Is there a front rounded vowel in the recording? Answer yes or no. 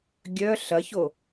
yes